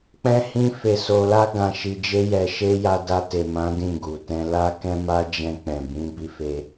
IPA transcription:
k͡pɛ̃˦hĩ˦ fe˧so˧la˦ ɡã˧ ʃi˧d͡ʒe˦jɛ˧ʃe˦ ja˧da˧te˨mã˨˦ dĩ˦˨ɡu˨ tɛ̃˧la˦kɛ̃˦ma˦ d͡ʒɛ̃˧k͡pɛ̃˨bĩ˨˦ bi˧fe˧

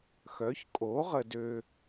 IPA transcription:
xœ˩˥çkʼo˩˥ʁə˨dø˨

